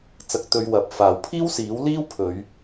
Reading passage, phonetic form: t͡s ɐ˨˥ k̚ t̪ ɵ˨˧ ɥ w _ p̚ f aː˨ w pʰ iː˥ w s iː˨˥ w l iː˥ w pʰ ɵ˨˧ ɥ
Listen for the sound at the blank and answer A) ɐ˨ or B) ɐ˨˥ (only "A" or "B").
A